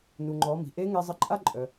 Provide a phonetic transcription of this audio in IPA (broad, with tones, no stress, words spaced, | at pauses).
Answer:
nu˩ŋ͡ǃɔ˩˧mi̤˩ ʔe˧˥ŋe˧zˤə˧ ǃʼa˥ǃʼœ˩